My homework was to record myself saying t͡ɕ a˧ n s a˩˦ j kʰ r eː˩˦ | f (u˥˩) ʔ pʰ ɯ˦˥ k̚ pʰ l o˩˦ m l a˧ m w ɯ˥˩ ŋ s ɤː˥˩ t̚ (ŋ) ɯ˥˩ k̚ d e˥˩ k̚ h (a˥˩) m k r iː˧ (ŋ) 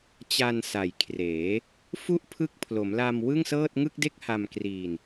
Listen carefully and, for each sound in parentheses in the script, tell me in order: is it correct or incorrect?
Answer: correct, correct, incorrect: a˧, incorrect: n

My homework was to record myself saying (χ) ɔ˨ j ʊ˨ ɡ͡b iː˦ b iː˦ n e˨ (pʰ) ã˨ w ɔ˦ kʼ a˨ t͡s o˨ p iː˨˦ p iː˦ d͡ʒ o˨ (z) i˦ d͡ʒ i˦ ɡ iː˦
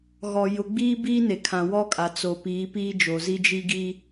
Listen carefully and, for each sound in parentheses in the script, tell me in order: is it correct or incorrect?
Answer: incorrect: ɣ, incorrect: kʰ, correct

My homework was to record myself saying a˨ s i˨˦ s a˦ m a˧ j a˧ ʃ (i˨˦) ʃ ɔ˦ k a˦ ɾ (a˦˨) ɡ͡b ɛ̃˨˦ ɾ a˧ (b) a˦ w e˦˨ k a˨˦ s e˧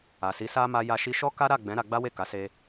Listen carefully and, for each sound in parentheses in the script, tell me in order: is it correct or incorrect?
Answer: incorrect: i˧, correct, incorrect: ɡ͡b

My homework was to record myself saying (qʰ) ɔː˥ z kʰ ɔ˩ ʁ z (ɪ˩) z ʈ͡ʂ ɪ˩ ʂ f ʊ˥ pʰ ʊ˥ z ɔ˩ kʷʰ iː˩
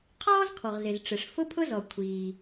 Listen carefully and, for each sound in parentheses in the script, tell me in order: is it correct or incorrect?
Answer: correct, correct

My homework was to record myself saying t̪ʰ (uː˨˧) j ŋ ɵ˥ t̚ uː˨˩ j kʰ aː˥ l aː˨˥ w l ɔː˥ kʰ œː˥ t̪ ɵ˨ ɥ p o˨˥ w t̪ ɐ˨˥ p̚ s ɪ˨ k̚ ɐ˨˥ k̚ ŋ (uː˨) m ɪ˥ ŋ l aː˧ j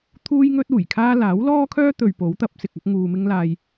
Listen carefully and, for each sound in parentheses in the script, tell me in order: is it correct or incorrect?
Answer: incorrect: uː˥, incorrect: uː˧

